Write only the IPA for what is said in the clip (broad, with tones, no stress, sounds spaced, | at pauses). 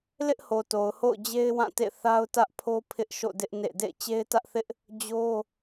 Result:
l ɪ˦ ʔ h o˨ t o˨ ʊ̯ h o̰˦˨ ʊ̯ d͡ʑ e˦ ɪ̯ w ã˦˨ t ḛ˦˨ θ a˦ ʊ̯ t ä˦ ʔ pʰ o˦ pʰ ɪ˦ ʔ ʃ o̰˦˨ d ɪ˦ ʔ n ḛ˦˨ d ḛ˦˨ ɪ̯ t͡ɕ e˦ ɪ̯ t ä˦ ʔ θ ɪ˦ ʔ | d͡ʑ o˦